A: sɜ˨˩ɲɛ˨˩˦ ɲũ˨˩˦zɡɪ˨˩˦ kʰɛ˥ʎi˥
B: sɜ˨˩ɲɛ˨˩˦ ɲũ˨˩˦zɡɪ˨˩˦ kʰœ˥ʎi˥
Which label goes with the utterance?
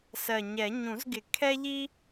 A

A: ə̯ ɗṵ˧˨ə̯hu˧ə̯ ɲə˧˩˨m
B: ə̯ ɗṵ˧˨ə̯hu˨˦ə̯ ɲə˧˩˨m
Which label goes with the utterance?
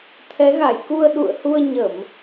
A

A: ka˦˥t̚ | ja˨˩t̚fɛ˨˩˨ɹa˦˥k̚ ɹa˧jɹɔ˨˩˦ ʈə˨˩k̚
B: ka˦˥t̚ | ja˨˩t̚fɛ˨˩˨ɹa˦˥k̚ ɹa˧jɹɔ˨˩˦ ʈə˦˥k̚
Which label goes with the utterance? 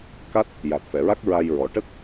B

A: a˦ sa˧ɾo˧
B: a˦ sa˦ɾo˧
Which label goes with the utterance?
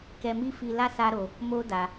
B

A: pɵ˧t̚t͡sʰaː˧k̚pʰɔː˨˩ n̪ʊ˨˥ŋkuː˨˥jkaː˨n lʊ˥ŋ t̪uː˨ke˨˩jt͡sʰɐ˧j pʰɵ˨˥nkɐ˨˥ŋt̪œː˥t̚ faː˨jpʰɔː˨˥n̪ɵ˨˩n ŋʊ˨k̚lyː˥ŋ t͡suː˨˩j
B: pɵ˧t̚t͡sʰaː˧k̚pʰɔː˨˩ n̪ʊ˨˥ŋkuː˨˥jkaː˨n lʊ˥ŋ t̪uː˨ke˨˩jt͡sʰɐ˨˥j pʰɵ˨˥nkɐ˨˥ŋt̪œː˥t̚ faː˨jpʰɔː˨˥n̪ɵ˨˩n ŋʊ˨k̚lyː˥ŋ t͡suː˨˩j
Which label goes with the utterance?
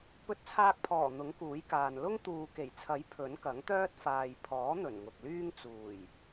B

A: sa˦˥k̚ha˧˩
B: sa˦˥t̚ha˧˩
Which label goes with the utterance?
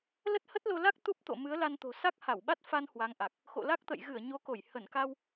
A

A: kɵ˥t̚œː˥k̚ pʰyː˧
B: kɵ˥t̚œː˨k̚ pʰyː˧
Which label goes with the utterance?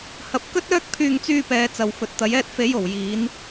A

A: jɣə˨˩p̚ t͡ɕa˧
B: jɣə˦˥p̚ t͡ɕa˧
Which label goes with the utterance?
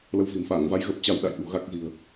A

